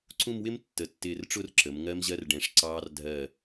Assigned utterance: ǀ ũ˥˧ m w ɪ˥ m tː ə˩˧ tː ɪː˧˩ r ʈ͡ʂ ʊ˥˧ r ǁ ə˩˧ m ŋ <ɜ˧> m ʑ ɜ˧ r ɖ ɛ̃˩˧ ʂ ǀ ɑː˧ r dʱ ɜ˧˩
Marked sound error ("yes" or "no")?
no